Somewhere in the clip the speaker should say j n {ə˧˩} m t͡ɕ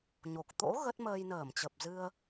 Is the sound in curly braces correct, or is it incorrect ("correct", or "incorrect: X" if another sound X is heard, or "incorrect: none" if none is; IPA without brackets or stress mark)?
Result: incorrect: əː˧˩